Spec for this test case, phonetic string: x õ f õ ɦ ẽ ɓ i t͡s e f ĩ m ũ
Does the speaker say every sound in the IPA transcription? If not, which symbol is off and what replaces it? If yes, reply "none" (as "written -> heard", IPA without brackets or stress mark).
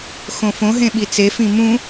none